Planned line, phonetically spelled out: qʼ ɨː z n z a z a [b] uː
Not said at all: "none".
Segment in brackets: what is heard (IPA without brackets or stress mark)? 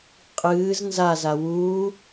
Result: w